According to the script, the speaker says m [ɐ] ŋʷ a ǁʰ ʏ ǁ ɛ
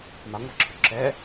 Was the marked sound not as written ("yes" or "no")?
yes